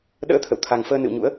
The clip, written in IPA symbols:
ɗ ə̰ː˧˥ t̪ʰ ə̰˧˨ w t̪ʰ a˨˩ ŋ f əː˧ n ɨ̰˧˨ w ɲ ṵ˧˥ ə̯

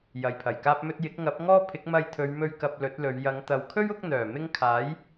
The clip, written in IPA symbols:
j ɐ˨ j pʰ ɐ˨˩ j k aː˥ p̚ m ɵ˥ t̚ j ɪ˨˥ k̚ ŋ ɐ˨˥ p̚ ŋ ɔː˥ pʰ ɪ˨˥ k̚ m ɐ˧ j t̪ʰ ɵ˨˧ ɥ m ɵ˧ ɥ k ɐ˧ p̚ l ɵ˨˥ t̚ l ɵ˨˧ ɥ j ɐ˨˧ ŋ t̪ ɐ˨ w kʰ ɵ˥ ɥ ʊ˨˥ k̚ n̪ œː˨˩ m ɪ˥ ŋ kʰ aː˨˥ j

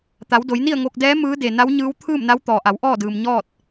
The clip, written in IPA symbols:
t̪ a˩˧ w d o˩˧ j n i˥˨ ə̯ ŋ o˧ k̚ d ɛː˧˥ m ɯː˧˥ d e˩ n a˧˥ w ɲ ɯː˧˥ w t̪ʰ ɯː˥˨ m n a˧˥ w t̪ ɔː˩ ʔ a˩˧ w ʔ ɔː˥˨ d ɯː˩ m ɲ ɔː˥˨ t̚

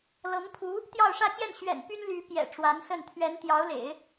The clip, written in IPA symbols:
l ɤ˧˥ ŋ pʰ u˧˥ | t̪ j ɑ˥˧ ʊ̯ ʂ ä˥˧ t͡ɕ j ɛ˥˩ n ɕ ɥ ɛ̰˨˩ n p y˥ n l y˧˥ p j ɛ̰˨˩ ʈ͡ʂ w a˧˥ n s ə˥˩ n t̪ʰ ɥ ɛ˧˥ n t̪ j ɑ˧˥ ʊ̯ l ḛ˨˩˦ ɪ̯

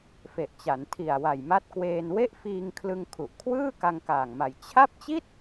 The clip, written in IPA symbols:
f e˨˩ ʔ t͡ɕ a˩˦ n tʰ i˨˩ a̯ w a˨˩ j m a˦˥ t̚ k w eː˧ n w e˥˩ ʔ f iː˧ ŋ kʰ l ɯ˧ ŋ kʰ u˨˩ ʔ kʰ w ɯː˥˩ k a˧ ŋ k aː˨˩ ŋ m a˨˩ j t͡ɕʰ a˥˩ p̚ t͡ɕ i˥˩ t̚

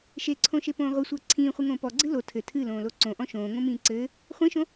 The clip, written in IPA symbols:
ʃ e ǀʰ õ ʃ e p õː ʁʷ ɨ sʷ ɘː ǀʰ ĩː χʷ ɨ ŋ õː p ɔ ɡ͡ǀ ɨ l o tʰ ɘ tʰ ɨ l õː l o ǀ õ ʔ ɔ̃ ʃ õː ŋ õ m ĩː ǀ ɘː | χʷ ĩ ʃ õ

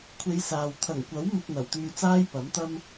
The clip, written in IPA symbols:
kʷʰ e˧ j s aː˨ w t̪ʰ ɐ˨˩ ŋ kʷ ɐ˨˥ w m ɪ˧ k̚ n̪ ɐ˨˩ w t̪ yː˧ t͡s aː˥ j p ɐ˨˥ m t̪ ɐ˥ m

